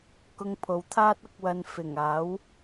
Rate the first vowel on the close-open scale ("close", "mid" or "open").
close